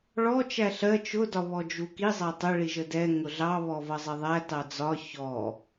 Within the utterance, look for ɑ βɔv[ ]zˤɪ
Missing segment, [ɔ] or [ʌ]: ʌ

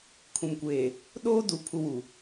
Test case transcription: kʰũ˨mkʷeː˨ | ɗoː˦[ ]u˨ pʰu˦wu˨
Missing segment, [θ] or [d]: d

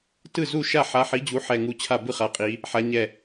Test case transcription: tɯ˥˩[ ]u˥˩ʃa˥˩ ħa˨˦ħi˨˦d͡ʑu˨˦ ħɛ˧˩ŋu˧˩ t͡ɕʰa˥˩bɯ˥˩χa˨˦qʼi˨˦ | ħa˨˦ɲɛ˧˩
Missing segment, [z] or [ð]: z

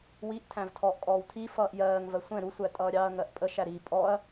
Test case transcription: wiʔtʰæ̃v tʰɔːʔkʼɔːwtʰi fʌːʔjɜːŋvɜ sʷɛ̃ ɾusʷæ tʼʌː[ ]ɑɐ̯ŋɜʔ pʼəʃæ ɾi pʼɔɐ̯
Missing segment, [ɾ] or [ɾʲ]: ɾʲ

